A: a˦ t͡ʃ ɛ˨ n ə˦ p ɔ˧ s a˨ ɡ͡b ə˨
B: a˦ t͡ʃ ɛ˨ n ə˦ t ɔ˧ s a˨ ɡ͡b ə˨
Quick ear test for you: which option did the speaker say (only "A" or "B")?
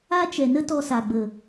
B